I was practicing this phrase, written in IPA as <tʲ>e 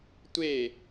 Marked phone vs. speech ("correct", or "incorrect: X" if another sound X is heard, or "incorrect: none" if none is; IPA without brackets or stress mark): incorrect: tʷ